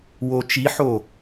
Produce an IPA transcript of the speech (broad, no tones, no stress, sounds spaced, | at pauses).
w o t͡ʃ i ħ o